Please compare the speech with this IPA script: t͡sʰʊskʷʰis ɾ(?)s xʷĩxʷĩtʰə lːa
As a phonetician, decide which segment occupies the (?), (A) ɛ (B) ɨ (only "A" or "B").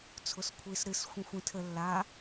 B